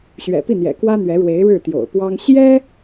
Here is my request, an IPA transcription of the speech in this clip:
ɕɥɛ̰˨˩pi˥˩n̪jɛ̰˨˩ kwä˥n̪ɥɛ˧˥ɻwe˧˥ɪ̯ ɻɻ̩˥˩t̪jo̰˨˩ʊ̯ pwɑ˥ŋ ɕjɛ˥

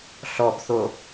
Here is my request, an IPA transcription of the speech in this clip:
ɬɔbθo

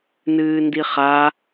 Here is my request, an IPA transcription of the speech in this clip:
nɨːndiχa

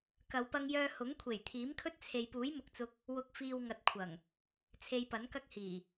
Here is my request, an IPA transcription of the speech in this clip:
kɐ˨˧wpɐ˧ŋjœː˧ hʊ˨˥ŋkʷʰe˨˩j t̪ʰiː˨˥mkʰɵ˥t̚t͡sʰe˨jpuː˨˥j mʊ˨k̚t͡sʊ˧k̚ | wʊ˨k̚fiː˨w ŋɐ˨t̚kʷʰɐ˨˩ŋ | t͡sʰe˧jpɐ˨˥nkɐ˥k̚hiː˨˩

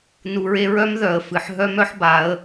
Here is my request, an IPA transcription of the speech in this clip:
nu˨ɹe˧ɹœ˦m ðœ˨ə̯fɨ˨ħ ɦœ˦mœ˦ħba˨˦ə̯

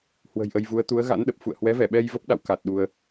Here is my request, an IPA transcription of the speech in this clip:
hwə̤˨˩jʔə˧jvu˨˦ə̯ t̪u˨˦ə̯ɣa̰˧˥nɗə˨˩p̚ fṵ˧˨ə̯hwɛ˨˦vɛ˧˩ɓɛ˧j və˦˥p̚ɗa̰˧˨wka˨˩t̚ ɗu˧ə̯

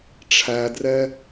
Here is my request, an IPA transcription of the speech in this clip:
ʈ͡ʂʰædrɛ

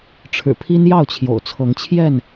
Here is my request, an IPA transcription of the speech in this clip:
ʈ͡ʂʰɻ̩˨˩pʰi˦n jɑ˥˨ʊ̯t͡ɕʰjo̰˨˩ʊ̯t͡sʰɤ˨˦ŋt͡ɕʰjɛ˥˨n

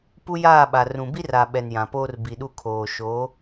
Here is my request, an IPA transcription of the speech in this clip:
pu˦jaː˦˨ɓa˨ rũ˨bi˦r a˨ ɓɛ˨njã˨poː˦r bi˨ɗu˦˨kʰoː˨ ʃo˨˦

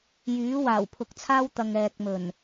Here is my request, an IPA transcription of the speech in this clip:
jyː˨˥waː˨˩wpʰʊ˨˥k̚t͡sʰaː˥w t̪ɐ˨ŋɛː˨k̚mɵ˨˩n

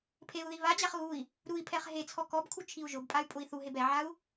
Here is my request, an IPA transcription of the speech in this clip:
pʰeu̯ði βad͡ʑaχ ɣui̯ | ɾui̯pʰɛχ ɦet͡sʰɔ kɔbkʰu t͡ʃʰiu̯ʒʊbpʼay̯ pʼʊi̯θuɦeb ɛʕau̯

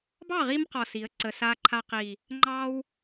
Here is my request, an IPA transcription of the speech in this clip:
bɑ˥˩ʁi˧m qɔ˨˩si˩˧ə̯ǀə˨˩ sa˧ǃʰa˧qi˨˩ | ŋ͡ǃɑ˧w

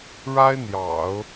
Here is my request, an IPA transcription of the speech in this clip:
ɻa˥ɪ̯n̪jɑ̰˨˩˦ʊ̯

